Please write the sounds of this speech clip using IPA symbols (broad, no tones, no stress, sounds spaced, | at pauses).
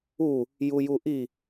u | j u j u ʔ i